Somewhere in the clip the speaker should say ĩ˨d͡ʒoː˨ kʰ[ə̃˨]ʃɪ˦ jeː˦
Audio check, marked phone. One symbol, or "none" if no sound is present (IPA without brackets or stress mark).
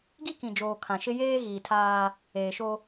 ã˨